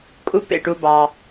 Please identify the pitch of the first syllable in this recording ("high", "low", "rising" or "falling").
high